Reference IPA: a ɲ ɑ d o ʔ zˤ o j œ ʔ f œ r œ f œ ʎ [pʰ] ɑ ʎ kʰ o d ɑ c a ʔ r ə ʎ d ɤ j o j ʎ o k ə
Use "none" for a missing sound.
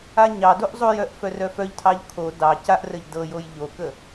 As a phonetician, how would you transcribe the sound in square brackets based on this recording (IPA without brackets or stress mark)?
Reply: tʰ